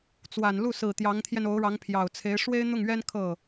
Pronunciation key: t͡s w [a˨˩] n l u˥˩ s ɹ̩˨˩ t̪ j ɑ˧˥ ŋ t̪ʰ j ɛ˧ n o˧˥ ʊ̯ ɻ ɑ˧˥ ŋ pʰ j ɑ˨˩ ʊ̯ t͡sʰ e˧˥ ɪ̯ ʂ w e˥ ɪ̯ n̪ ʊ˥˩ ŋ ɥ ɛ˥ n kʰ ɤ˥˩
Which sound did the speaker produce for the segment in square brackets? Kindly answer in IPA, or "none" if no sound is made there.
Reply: a˨˩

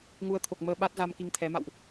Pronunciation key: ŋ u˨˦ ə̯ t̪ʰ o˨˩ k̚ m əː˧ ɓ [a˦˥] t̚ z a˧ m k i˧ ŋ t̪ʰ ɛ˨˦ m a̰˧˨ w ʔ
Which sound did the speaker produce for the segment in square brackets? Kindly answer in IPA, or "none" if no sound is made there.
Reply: a˦˥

